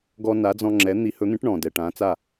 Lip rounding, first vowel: rounded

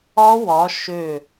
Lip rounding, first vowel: rounded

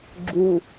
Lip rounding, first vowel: rounded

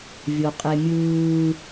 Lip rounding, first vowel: rounded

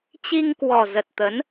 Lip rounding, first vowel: unrounded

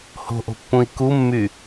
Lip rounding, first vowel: rounded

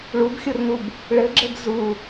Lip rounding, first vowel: rounded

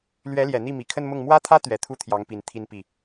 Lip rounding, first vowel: unrounded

